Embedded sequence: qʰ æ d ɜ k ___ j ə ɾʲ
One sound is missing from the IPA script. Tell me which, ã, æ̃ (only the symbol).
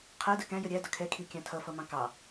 æ̃